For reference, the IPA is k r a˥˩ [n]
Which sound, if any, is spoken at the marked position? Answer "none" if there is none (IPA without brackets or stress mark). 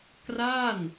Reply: n